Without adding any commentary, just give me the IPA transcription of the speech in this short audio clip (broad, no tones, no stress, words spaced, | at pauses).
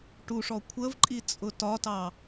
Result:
ʈuʂɔ kʷʰəvǃʼit͡sʼʊ tɒtɑ